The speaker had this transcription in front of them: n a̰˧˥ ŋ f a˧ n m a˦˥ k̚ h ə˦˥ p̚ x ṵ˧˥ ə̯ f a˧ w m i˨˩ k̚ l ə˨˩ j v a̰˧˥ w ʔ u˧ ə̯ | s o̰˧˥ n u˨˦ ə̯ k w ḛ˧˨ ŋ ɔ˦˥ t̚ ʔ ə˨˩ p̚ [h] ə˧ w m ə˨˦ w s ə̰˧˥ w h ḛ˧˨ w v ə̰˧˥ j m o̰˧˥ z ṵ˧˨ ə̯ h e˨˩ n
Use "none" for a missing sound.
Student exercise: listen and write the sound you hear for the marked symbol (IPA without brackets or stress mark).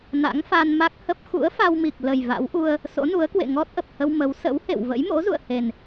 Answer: h